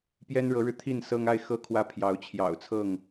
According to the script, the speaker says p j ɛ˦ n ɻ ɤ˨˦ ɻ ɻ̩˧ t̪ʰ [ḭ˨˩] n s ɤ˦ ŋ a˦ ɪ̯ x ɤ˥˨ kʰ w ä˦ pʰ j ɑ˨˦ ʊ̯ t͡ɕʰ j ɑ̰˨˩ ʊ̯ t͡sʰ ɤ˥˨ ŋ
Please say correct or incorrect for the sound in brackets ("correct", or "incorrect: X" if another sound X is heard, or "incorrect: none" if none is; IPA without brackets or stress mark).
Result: incorrect: i˥˨